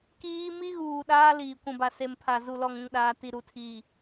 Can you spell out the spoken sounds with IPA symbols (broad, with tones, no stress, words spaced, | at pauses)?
kiː˦ mi˦ɣuː˨ ɗaː˦liː˨ kʷũ˨ba˨se˨mpʰa˨ zu˨lɔ˨ŋũ˨ŋɗaː˨ ti˨ɾu˨tʰiː˨